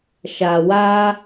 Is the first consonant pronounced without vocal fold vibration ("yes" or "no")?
yes